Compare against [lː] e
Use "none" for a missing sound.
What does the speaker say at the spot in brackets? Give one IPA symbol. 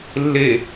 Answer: lː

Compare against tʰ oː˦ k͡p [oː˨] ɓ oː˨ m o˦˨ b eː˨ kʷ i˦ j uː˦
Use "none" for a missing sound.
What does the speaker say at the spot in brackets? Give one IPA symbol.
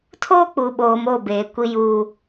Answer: uː˨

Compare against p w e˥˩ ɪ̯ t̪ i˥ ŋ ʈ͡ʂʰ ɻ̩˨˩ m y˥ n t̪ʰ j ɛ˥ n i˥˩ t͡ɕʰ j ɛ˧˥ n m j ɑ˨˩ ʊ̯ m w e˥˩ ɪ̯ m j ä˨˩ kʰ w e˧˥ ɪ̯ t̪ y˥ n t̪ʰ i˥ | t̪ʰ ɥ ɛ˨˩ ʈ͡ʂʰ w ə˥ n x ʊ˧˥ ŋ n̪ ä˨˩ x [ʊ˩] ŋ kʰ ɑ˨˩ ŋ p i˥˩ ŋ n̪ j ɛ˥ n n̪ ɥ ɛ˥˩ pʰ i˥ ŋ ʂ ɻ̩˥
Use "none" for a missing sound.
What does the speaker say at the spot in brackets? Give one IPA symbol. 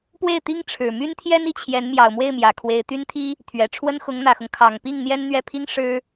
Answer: ʊ˦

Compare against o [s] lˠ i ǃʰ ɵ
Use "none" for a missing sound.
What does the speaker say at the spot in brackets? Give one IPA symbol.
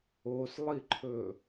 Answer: s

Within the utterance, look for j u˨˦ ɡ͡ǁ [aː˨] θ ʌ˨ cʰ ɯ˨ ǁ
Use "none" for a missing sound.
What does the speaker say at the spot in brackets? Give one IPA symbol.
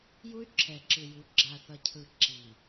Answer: a˨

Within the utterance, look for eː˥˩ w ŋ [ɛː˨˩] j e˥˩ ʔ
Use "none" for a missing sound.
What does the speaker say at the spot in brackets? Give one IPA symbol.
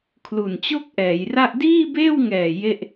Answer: ɛː˨˩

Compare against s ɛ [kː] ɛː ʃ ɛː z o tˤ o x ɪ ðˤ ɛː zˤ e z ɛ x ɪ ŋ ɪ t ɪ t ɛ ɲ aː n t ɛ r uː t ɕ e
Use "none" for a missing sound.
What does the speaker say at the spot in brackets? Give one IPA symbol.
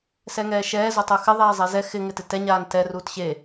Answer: ŋ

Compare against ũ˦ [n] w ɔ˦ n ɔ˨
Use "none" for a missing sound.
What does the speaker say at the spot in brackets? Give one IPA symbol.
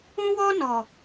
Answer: none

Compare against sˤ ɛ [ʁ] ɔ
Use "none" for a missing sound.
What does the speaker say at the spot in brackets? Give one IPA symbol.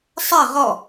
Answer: ʁ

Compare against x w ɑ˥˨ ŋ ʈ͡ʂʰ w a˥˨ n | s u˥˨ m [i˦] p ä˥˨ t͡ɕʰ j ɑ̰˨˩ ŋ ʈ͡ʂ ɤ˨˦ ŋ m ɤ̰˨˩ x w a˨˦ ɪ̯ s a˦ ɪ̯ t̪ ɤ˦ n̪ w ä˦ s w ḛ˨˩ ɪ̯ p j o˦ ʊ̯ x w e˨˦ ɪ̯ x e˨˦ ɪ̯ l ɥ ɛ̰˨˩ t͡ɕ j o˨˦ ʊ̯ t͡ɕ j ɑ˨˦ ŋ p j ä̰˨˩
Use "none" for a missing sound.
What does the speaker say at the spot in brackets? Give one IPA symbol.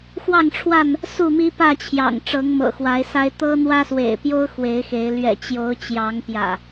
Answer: i˦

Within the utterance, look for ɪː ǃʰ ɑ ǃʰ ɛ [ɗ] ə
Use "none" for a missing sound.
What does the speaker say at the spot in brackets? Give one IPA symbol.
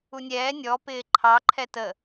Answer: t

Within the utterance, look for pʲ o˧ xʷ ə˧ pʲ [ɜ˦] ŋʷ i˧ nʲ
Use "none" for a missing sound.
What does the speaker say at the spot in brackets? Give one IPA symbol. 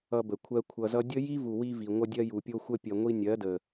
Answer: ɜ˨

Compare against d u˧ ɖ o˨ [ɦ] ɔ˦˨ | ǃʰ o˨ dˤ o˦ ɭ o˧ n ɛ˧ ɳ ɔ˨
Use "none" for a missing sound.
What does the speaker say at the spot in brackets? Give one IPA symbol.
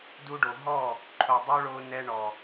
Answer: ɦ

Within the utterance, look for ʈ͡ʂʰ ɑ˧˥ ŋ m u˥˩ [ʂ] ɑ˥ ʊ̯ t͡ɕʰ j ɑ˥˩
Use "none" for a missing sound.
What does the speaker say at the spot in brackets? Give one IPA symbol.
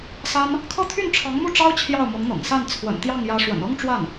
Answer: ʈ͡ʂ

